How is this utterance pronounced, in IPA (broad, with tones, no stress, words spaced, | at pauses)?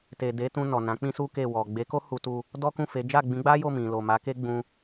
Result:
te˨de˨˦tũ˧ nɔ˨nã˨˦k͡pĩ˦su˦ ke˦˨wɔ˨ ɡ͡be˨˦ko˦ hu˧tu˧ | dɔ˦kũ˦˨fe˨˦ d͡ʒa˦˨ɡ͡bĩ˨˦ɡ͡ba˦jo˦˨ mĩ˨ lo˨ma˨˦ke˦ ɡ͡bũ˧